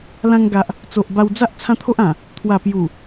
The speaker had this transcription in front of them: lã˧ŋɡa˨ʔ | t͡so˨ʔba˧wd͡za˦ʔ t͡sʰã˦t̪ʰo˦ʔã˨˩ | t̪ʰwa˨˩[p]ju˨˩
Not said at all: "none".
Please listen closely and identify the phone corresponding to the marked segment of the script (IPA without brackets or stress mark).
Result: p